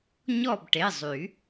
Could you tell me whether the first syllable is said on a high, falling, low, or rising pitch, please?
falling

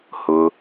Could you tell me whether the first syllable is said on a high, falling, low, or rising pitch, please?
low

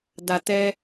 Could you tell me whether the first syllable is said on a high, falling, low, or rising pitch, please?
low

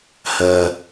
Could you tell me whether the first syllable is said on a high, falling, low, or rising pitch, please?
low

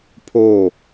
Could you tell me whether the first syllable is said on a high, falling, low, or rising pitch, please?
falling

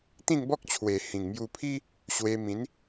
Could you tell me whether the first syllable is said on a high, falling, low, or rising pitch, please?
falling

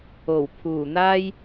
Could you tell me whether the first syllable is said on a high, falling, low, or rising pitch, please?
low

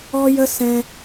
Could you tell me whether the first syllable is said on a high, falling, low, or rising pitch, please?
high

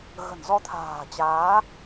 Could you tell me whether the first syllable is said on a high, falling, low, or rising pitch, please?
low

